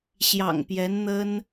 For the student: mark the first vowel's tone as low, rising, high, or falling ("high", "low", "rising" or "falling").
low